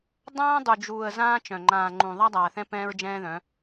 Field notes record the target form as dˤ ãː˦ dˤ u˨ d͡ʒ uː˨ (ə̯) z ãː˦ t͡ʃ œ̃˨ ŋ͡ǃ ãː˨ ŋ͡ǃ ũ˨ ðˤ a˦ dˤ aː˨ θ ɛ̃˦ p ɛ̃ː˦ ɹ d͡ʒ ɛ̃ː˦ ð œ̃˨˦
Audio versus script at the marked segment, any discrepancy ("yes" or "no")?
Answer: no